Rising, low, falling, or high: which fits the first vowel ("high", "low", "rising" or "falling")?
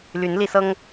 rising